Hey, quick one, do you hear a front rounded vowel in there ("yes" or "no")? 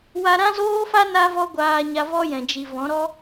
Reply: no